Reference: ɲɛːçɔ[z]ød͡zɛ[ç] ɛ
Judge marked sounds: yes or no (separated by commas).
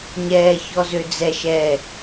yes, no